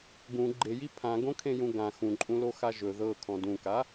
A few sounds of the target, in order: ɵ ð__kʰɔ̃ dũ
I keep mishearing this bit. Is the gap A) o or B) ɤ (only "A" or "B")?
B